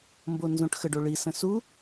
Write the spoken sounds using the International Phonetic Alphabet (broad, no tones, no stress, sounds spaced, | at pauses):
m b o n z õ ʈ x ə ɖ o ɭ i s ə̃ s u